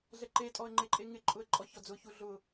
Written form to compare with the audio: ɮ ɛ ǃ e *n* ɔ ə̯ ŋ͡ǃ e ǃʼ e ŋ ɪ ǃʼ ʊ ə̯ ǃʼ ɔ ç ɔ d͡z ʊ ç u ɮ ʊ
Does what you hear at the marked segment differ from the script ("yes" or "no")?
yes